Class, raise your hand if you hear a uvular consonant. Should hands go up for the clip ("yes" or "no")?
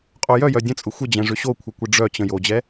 yes